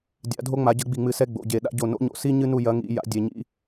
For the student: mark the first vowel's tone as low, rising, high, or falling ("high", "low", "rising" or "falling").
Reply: rising